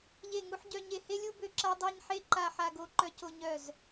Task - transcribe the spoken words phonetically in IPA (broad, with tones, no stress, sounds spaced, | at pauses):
ʎ e˥˧ ŋ u˥ ħ ɟ œ˥ ɲ e˥˧ h e˥ lʲ u˥ b ø˥ ǁ a˥ dˤ a˥ ɲ ħ e˥ ǃ a˥ ħ a˥ ɡ o˥ ǃ œ˥ c o˥ ɲ œ˥˧ z